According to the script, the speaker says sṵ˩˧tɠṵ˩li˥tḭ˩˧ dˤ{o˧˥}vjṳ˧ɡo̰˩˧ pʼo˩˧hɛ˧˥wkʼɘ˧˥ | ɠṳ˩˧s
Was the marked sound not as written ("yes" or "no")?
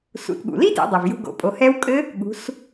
yes